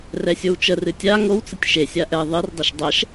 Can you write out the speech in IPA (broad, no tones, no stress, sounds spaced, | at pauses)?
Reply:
r ɛ sʲ o w t͡ʃ ə r ɨ tʲ a ŋ o w t͡s ə tʲ ʃ e sʲ a ʔ ɛ ðˤ ɨ r dˤ e ʃ dˤ ɛ ʃ